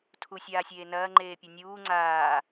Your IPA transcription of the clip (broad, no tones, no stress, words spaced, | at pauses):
tʰusʲaːsʲeː nɐːŋ͡ǃeːpʲɐ nʲuː ŋ͡ǀaː